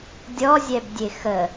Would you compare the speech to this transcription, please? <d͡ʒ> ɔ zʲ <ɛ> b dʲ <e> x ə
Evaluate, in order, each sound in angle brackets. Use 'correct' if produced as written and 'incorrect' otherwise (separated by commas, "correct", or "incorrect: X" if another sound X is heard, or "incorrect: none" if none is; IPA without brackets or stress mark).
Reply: incorrect: dʲ, correct, correct